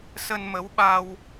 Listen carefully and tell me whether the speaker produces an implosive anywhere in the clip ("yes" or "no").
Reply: yes